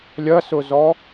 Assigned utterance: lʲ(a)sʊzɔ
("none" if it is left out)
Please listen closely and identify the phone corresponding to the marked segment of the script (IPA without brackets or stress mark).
ɐ